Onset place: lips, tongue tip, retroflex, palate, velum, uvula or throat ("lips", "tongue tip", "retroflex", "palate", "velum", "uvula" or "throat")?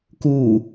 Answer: velum